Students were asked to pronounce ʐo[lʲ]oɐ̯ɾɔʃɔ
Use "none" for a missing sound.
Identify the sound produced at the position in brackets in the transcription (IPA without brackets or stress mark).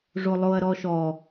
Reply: lˠ